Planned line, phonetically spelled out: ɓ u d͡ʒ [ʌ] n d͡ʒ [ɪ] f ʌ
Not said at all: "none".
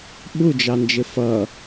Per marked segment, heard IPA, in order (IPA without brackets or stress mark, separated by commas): ɑ, ɪ